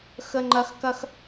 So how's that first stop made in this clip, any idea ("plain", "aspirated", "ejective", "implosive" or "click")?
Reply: click